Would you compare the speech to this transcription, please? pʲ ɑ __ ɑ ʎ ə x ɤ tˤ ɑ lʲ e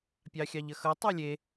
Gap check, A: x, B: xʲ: B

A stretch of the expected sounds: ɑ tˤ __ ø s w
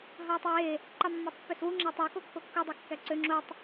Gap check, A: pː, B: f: A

